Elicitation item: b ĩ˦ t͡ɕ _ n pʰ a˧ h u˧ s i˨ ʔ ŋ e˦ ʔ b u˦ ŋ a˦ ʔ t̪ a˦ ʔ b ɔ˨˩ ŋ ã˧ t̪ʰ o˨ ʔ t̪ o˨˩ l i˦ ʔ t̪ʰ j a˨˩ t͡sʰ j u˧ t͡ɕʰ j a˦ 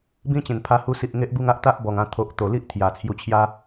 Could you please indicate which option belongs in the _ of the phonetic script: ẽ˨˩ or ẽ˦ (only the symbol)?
ẽ˨˩